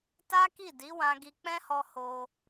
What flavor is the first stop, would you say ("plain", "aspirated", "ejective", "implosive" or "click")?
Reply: plain